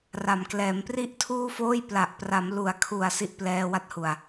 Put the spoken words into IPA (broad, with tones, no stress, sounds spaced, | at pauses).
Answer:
r a˩˦ m k l ɛː˩˦ m p r i˥˩ ʔ tʰ uː˥˩ f oː˥˩ j p l a˨˩ ʔ p r a˩˦ m l u˩˦ a̯ kʰ u˨˩ a̯ s i˦˥ ʔ p l ɛː˧ w a˦˥ t̚ h u˨˩ a̯